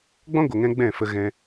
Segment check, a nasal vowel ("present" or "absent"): present